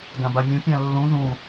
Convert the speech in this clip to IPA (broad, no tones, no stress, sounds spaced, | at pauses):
ɡ ã b a mʲ ũ pʲ ã lː ũ ð ũ